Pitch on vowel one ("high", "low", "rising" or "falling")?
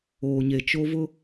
low